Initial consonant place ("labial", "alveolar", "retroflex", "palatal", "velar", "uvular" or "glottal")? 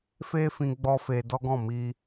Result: labial